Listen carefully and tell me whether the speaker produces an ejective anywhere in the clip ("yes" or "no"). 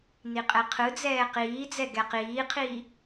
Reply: yes